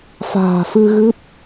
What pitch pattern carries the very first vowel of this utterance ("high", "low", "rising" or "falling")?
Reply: low